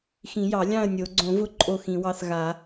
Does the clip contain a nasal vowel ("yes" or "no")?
yes